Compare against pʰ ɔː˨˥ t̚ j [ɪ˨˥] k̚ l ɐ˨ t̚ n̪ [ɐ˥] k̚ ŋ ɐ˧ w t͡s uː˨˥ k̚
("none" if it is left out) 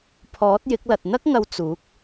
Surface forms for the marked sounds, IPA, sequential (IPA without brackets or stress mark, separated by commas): ɪ˨˥, ɐ˥